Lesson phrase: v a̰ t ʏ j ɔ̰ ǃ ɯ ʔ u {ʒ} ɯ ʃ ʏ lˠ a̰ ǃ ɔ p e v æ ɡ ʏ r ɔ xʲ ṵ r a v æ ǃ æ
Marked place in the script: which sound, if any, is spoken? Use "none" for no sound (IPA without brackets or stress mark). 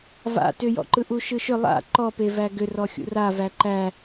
ʃ